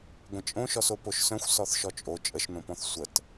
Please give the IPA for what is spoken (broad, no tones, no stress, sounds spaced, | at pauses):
ɡʷ ə̃ t͡ʃʼ õ ʃ ɔ s o p o ʃ s œ̃ xʷ s ɔ θ ʃ ɔ t͡ʃʼ o t͡ʃʼ ə ʃ n õ p ɔ̃ θ sʷ ə t